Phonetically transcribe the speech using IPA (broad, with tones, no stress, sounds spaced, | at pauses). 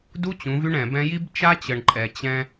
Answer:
d u˦ t͡ɕ ũ˨˦ v y˦ ɳ ɛ̃˨ b ɛ̃˦ j i˦ b t͡ʃ a˦ t͡ɕ ə˨ ɳ ǃʼ ɛ˨ t͡ɕ ɛ̃˦